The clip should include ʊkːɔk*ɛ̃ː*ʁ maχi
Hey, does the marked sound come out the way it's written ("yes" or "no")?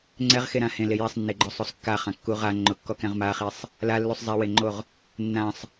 no